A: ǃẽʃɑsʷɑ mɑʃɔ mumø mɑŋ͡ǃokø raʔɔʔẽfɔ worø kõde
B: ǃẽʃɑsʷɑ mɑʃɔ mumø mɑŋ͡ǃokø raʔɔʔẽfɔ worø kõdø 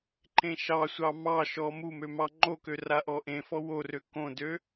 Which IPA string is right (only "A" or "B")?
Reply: B